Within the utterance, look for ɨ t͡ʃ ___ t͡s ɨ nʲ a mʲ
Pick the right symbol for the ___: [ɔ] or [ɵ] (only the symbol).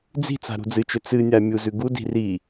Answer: ɵ